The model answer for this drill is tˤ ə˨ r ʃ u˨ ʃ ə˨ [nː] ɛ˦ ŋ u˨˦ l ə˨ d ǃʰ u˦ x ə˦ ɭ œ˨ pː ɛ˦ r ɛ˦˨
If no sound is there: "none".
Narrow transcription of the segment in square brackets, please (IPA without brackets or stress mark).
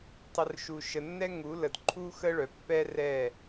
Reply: nː